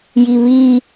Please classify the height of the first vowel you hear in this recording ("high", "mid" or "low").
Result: high